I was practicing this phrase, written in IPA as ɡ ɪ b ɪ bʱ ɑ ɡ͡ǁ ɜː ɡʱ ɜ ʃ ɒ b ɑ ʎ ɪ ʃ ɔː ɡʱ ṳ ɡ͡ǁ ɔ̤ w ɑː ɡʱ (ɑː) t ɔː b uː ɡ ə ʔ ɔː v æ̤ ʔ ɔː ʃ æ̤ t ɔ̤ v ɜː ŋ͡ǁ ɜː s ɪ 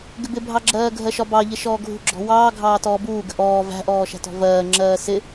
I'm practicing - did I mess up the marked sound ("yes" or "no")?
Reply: no